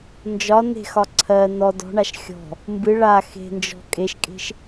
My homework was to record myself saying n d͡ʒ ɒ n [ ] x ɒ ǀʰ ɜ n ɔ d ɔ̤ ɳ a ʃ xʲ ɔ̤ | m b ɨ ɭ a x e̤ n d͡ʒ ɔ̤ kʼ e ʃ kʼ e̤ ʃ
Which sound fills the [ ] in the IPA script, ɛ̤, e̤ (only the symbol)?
e̤